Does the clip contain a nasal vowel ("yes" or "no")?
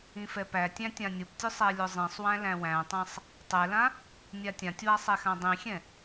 yes